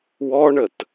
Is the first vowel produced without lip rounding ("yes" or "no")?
no